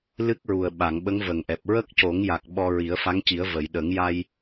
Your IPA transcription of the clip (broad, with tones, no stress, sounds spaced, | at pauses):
l ɨ˦˥ k̚ ɹ u˨˩ ə̯ ɓ a˨˩˨ ŋ ɓ ə˧˥ ŋ v ə˨˩ ŋ ʔ ɛ˨˩ p̚ ɹ ə˦˥ k̚ c o˨˩˦ ŋ j a˨˩ k̚ ɓ ɔ˧ ɹ i˨˩˦ ə̯ f a˧˥ ŋ c i˨˩˦ ə̯ v ə˨˩˨ j ɗ ə˨˩˦ ŋ j a˧ j